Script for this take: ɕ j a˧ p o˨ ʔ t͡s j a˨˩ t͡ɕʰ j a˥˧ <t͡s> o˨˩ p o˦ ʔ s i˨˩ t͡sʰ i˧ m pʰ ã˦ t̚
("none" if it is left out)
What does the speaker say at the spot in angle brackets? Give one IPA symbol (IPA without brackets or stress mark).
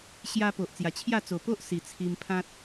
t͡s